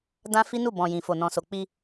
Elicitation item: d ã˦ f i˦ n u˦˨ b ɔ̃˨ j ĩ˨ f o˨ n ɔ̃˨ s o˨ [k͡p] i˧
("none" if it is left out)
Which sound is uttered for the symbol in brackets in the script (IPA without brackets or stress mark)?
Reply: k͡p